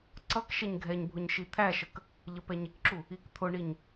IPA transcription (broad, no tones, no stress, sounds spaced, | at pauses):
ǀ ʌ k ʃ ɛ ɲ ɡʱ ɛ ɲ bʱ ʊ ɲ ʃ i t̪ʰ æ ʃ ə k | ʎ ə p ɛ ɲ ɪ k ǁ u | i k t̪ʰ ʊ ɳ i ɲ